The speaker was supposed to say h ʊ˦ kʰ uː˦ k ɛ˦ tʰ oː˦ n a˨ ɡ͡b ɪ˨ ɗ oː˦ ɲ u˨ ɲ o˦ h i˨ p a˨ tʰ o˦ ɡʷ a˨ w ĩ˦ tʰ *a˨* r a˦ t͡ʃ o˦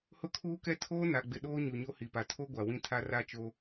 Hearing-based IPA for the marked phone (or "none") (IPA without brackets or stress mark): a˦